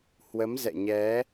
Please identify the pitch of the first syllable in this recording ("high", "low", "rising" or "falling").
rising